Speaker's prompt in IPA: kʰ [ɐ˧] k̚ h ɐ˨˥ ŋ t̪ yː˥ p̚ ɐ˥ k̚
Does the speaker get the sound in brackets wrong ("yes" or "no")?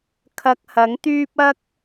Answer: no